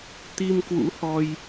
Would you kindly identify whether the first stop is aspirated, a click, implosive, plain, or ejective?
plain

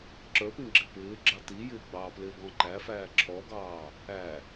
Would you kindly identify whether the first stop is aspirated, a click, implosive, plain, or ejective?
click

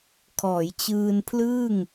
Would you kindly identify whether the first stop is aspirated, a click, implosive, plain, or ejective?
aspirated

